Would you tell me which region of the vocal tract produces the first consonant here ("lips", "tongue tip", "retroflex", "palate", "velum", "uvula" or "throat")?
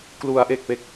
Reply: velum